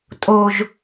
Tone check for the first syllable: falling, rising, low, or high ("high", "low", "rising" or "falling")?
high